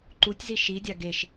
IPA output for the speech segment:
ǃ u tʲ z i ʃ i dʲ a ɡ e ʃ

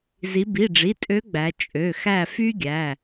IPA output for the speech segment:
z i˩˧ b i˩˧˩ ɖ͡ʐ i˩˧˩ tʼ ø˧˥ ɡ͡b æ˩˧ t͡ʃʼ ø˩˧˩ x æ˦˨ f y˥ ɡʲ æ˩˧˩

